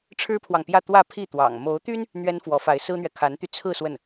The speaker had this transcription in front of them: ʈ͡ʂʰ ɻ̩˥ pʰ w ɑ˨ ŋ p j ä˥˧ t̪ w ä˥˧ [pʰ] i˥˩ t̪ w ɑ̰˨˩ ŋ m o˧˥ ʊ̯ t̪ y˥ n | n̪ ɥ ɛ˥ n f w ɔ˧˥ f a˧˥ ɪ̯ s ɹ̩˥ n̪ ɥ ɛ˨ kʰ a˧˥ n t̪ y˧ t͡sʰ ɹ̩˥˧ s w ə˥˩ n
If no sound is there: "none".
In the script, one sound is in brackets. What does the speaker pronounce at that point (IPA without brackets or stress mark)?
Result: pʰ